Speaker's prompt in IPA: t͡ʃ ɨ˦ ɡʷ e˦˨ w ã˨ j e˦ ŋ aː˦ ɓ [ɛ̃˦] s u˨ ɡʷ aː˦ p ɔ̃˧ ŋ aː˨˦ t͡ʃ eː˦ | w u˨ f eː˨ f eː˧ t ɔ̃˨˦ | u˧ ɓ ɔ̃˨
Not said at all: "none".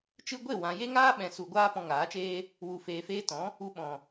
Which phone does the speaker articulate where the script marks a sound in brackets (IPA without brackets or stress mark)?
ɛ̃˨